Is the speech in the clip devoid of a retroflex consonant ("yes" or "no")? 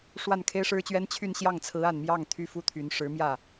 no